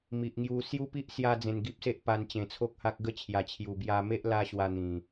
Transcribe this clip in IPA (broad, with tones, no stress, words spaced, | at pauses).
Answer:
mi˨ʔŋju˧ sju˦pi˦ʔ sja˦d͡zẽ˧nɡi˦p̚se˦ʔ pa˧nt͡ɕẽ˨˩t͡sʰo˦k̚ha˦k̚ ɡə˥˧t͡ɕʰja˨˩t͡ɕʰju˨˩ bja˧me˦ʔ la˦ɕwa˧ n̪ĩ˨˩